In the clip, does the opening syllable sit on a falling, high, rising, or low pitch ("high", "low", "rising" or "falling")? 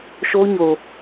high